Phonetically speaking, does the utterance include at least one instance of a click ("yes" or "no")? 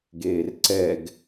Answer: yes